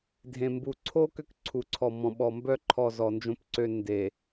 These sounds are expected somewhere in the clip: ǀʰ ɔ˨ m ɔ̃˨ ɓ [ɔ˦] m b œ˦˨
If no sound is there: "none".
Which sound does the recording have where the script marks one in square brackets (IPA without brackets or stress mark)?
ɔ˨